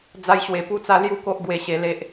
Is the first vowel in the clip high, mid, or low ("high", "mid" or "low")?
low